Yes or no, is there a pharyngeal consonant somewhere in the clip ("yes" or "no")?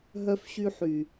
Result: yes